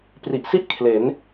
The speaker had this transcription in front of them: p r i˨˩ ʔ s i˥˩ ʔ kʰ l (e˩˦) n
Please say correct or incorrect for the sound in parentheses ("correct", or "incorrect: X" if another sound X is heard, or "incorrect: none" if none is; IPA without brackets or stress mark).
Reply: correct